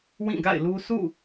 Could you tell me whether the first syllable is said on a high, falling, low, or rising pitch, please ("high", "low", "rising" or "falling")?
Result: falling